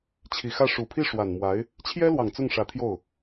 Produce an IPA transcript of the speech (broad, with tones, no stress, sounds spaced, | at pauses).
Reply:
t͡ɕʰ i˨˩ x ä˥˩ ʂ u˨˩ pʰ i˥˩ ʂ w a˨˩ n m w a˧˥ ɪ̯ | t͡ɕʰ j ɛ˥ l w ɑ˨˩ ŋ t͡s ʊ˥˩ ŋ ʂ ä˧˥ t̪ʰ j o˥˩ ʊ̯